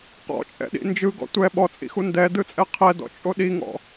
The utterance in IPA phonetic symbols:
q ɔ̰ t͡ʃʼ ɛ̰ ɗ ḭ n d͡ʒ ɯ ɡ ɔ̰ tʷ ɛ ɓ ɔ t͡sʼ ḭ x u n d ɛ d ɯ t͡sʼ ɛ qʰ ɛ d ɔ̰ t͡ʃʼ o ɗ i ŋ ɔ̰

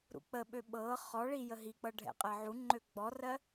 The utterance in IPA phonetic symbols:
ɾ ṵ k͡p ə ɓ ø ɓ ɤ χ ɔ ɭ i j ə ɦ i k͡p ɤ ɖʱ ɛ̰ qʼ ɜ ʕ u ŋ͡ǃ ø ɡ͡b ɔ r ɜ

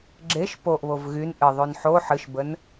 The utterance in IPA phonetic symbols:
ɡ͡ǁ e ʃ p o ʔ β o v ɣ y n ʔ ɨ ðˤ ʉ n ħ o ħ ɨ ʃ b ə n

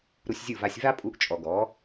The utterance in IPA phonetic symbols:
ɾ u˧ sʲ zʲ u˦˨ v a˧ sʲ v a˦ pʼ u˨˦ ʔ t͡ʃʼ ɔ˨ ɡ ɔ˨˦

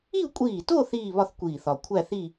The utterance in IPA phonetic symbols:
i˥˧ u̯ kʷʼ iː˧˩ t o˥˧ θ iː˥˧ β ɒ˥˧ θ kʷ iː˧˩ θ ɒ˧˩ kʷʰ æ˥˧ θ i˥˧

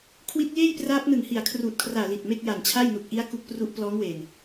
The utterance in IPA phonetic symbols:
kʰ w i˦˥ t̚ j eː˥˩ j p r aː˦˥ p̚ n ɯ˨˩ ŋ h i˨˩ a̯ kʰ r uː˨˩ t̚ kʰ r aː˨˩ l i˨˩ t̚ m e˥˩ k̚ j a˨˩ n t͡ɕʰ a˥˩ j n u˨˩ k̚ ʔ i˦˥ a̯ k u˦˥ k̚ p r u˦˥ ʔ p l ɔː˦˥ ŋ w e˨˩ n

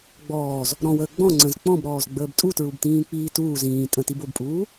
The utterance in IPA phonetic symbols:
ɡ͡b ɔː z | ɾ ɔ̃ w əː ɡ͡b ɔ̃ ŋ͡ǀ ə̃ z k͡p ɔ̃ b ɾ ɔː z ɡ͡b əː b tʼ u t ɹ u b t ĩː k͡p iː t uː z ĩː tʼ ə̃ t i b o b pʼ uː

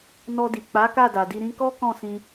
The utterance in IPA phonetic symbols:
n ɔ˧ d i˨ k͡p a˨˦ k a˦˨ d a˨ d i˧ ɾ ĩ˧ k ɔ˦ k ɔ̃˦˨ s ĩ˧

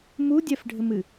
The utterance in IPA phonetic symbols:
m u dʲ ɛ f ɖʱ ɘ m ɨ

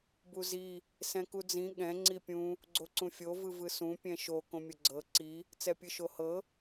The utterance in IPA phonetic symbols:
b u z i | s ɛ̃ k u d͡z ĩ ɠ ɛ̃ ŋ͡ǀ i pʲ ũ | ɡ͡ǀ o ǀ ũ fʲ o v ɯ v ɯ s ũ pʲ ɛ̃ ʃ o k õ mʲ ɤ ɡ͡ǀ ɤ ǀ i | t͡s ɛ pʲ ɯ ʃ o h ɤ

